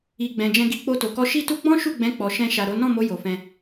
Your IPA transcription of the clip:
i˨ ɡ͡b ɛ̃˨ d͡ʒ ɛ̃˧ ɡ i˧ k͡p o˧ t o˨ k ɔ˧ ʃ i˦ t u˦ ɡ͡b ɔ̃˦ ʃ u˦˨ ɡ͡b ɛ̃˨˦ k͡p ɔ˧ ʃ ɛ̃˧ ʃ a˨ ɾ o˨˦ n ɔ̃˦˨ m o˨˦ j o˧ f ɛ̃˦

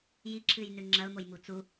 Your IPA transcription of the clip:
j i ǁʰ ɨ j n ʉ ŋ͡ǁ ɐ ʊ̯ m o j m u t͡s u

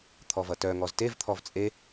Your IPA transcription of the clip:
t̪ʰ ɔ v ʌ t œ ŋ ɔ z t e v t̪ʰ ɔ v t͡sʼ e

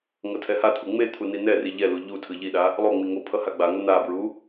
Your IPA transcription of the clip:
ŋ ʌ tʰ ɛ h a t̪ʰ u ŋ͡m e t̪ʰ u n i n ɛ r i ʎ ɛ l u ʎ u tʰ ɯ ʎ i ɗ a | lˠ o ŋ͡m i ŋ o pʰ ʌ h a ɡ͡b a ŋ ʌ n̪ a b ɹ u

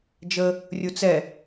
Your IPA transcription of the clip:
d͡ʒ ə | rʲ u t͡s ɛ

